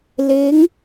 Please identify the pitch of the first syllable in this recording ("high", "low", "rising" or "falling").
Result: rising